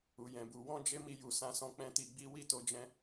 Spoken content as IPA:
u˨ j ɛ̃˨ b u˨ w ɔ̃˧ d͡ʒ e˦ m i˧ j u˨ s ã˧ s ɔ̃˧ k͡p ɛ̃˦ t i˧ ɡ͡b i˦ w i˦˨ t o˧ d͡ʒ ɛ̃˧

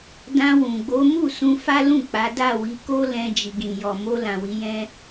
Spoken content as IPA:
d ã˧ w ũ˨ ɡ͡b o˨˦ m u˦˨ s ũ˧ f a˦ l ũ˦˨ k͡p a˨˦ d a˦˨ w i˨˦ k o˦ l ɛ̃˧ d͡ʒ i˨ ɡ ĩ˨ j ɔ˨ m o˧ l ã˨ w i˨˦ j ɛ̃˦

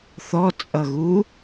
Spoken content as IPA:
θ ɔ t͡sʼ ʌ ɣ u

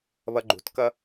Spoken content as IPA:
β ʌ ɡ͡ǃ ṳ t k ʌ

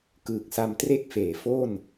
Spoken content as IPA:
k ɯː˨˩ k̚ s a˧ m t r e˥˩ k̚ f eː˩˦ f o˥˩ n

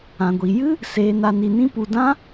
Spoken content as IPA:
ã˧ ɡʷ i˧ j ɨ˦ | s eː˧ n a˧ n i˧ n ĩ˦ p u˧ d ã˦

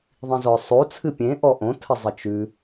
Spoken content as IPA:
ðˤ ĩ z ɔ sˤ o t͡sʰ ɨ pʲ ẽ ʔ ɔ ʔ õ tʰ ə zˤ ə t͡ʃ ʉ

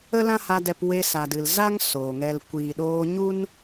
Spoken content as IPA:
ə˦ l ã˦ h a˧ d ɛ˧ p w e˧ s a˨ d ɨ˨ l z a˦ ŋ s oː˨ ŋ ɛ˧ l kʷ iː˨ ɗ oː˧ ɲ u˦ n

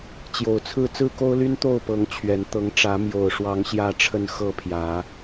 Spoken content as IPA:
t͡ɕ j o˨˩ ʊ̯ t͡sʰ ɹ̩˥˨ t͡s ɹ̩˥˨ k o˦ ʊ̯ l y˦ n t̪ o˥˨ ʊ̯ p ɤ˨˦ ŋ t͡ɕʰ ɥ ɛ˨˦ n t̪ ɤ˨˦ ŋ ʈ͡ʂ ä˨˦ m j o˨˩ ʊ̯ ʂ w ɑ˨˦ ŋ ɕ j ä˥˨ ʈ͡ʂʰ ə˥˨ n x ɤ˥˨ pʰ j ä˨˦

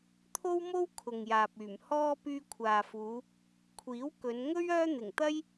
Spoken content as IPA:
t̪ʰ o˥ w m o˥ w kʰ ʊ˨ ŋ j aː˨ p̚ yː˨˩ m h ɔː˧ p yː˧ kʷʰ aː˨ f uː˨˧ | kʷʰ iː˨˥ w k ɵ˨˧ n ŋ ɵ˥ ɥ œː˥ n̪ ɪ˨˩ ŋ t̪ ɐ˥ j

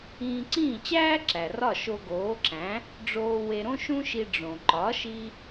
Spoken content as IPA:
ĩː˧ ǀ ĩː˥˩ t͡ɕ æː˥ ǁ æ˩ r ɒ˥˩ ʃ o˧ ɡ oː˩˥ ǁ æ̃˩˥ | ɖ͡ʐ oː˧ w e˧ ɾ õ˥ ʃ ũ˥ ʃ i˧ ɖ͡ʐ õ˩ ǃ ɒ˩˥ ʃ i˧

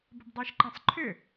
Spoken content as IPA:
b ə b dˤ ɪː ʃ ǃ ẽ sˤ ǃʰ ʏ

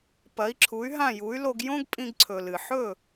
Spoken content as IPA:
p ɐ˩˥ i̯ ǁʰ u˩˥ y̯ ɦ ã˥˩ j u˩˥ y̯ l o˧ ɡ j õ˥ ɡ pʼ ĩ˧ ɡ ǀʰ ɵ˩ l ɨ˩ ħ ɵ˥˩

